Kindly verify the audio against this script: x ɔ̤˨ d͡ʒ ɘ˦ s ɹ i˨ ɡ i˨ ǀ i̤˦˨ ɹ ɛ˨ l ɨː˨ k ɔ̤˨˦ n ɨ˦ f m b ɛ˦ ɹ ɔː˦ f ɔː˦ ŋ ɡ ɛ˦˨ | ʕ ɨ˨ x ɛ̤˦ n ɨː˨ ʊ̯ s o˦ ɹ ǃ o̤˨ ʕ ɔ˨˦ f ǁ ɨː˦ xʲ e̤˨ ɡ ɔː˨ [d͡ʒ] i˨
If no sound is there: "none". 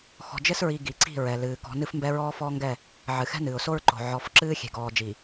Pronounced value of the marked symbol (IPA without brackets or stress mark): d͡ʒ